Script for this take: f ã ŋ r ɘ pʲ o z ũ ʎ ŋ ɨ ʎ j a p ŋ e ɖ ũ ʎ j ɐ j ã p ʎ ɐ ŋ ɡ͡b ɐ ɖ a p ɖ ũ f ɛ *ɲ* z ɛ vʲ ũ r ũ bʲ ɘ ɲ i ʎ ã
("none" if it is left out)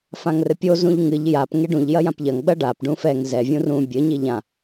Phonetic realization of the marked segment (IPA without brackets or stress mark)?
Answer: ŋ